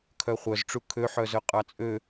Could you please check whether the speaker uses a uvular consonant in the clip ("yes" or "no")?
yes